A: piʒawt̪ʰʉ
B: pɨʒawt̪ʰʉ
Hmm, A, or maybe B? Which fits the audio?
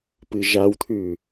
B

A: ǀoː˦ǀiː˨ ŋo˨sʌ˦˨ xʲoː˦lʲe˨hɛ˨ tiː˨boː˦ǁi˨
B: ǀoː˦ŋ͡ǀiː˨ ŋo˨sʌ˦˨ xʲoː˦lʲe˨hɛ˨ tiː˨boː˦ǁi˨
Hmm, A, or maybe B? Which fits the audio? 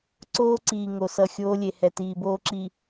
A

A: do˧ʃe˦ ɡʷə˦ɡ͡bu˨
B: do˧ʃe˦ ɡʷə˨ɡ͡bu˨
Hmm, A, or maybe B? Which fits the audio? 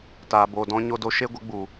A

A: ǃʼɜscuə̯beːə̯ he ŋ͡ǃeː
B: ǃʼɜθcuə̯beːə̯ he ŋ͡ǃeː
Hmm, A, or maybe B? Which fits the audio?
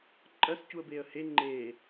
A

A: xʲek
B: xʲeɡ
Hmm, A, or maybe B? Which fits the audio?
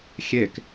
A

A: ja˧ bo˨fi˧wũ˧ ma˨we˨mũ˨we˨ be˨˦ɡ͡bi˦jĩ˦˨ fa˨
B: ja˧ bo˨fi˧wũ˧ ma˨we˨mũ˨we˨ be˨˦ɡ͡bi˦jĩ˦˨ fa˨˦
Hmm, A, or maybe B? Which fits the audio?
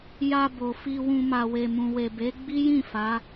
B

